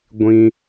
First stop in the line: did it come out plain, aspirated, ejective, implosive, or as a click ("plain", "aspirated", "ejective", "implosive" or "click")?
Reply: plain